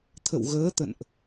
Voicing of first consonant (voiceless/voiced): voiceless